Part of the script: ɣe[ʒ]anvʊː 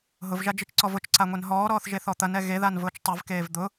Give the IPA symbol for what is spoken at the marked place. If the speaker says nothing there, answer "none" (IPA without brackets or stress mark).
ð